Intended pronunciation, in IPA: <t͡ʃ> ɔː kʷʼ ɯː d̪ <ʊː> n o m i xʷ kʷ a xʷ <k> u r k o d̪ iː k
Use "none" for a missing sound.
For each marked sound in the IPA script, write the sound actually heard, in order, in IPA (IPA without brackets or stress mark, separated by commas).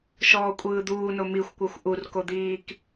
ʃ, uː, ʔ